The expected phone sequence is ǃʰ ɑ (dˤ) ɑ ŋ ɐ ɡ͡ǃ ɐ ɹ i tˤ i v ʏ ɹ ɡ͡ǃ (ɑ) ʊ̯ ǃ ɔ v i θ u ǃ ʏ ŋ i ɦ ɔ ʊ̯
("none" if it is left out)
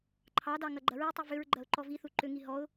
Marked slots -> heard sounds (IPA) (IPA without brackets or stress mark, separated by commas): d, ɐ